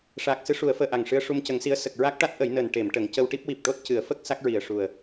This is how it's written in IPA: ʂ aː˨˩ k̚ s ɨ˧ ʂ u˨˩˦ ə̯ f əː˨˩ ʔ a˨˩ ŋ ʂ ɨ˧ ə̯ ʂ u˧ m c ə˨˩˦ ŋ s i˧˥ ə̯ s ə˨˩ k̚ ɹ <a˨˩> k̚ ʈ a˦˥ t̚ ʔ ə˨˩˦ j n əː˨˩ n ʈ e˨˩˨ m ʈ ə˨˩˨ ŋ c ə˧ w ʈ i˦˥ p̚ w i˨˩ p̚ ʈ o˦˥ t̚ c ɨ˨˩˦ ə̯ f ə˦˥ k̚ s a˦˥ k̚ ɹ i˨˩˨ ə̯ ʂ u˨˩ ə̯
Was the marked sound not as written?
yes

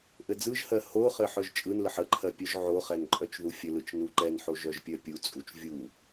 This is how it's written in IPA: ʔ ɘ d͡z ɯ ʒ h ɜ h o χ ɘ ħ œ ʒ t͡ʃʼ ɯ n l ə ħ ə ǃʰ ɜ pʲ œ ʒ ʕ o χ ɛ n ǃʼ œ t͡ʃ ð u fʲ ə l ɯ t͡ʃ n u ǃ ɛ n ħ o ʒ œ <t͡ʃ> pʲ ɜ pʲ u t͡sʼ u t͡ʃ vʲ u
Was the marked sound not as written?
yes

